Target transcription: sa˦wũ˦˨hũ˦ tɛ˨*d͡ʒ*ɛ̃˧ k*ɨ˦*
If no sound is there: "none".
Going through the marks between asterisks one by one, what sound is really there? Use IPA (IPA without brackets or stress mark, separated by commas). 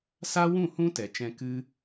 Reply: t͡ʃ, ɨ˦